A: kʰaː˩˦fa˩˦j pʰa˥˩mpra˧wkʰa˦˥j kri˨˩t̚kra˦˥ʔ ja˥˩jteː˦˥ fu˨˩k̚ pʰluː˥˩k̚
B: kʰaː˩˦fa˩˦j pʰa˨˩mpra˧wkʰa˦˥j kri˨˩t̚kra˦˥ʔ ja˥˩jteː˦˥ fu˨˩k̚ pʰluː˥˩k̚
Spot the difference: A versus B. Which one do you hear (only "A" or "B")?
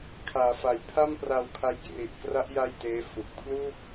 A